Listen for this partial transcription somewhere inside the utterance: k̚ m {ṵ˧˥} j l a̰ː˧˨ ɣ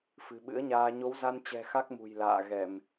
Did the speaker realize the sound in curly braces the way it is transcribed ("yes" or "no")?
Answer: no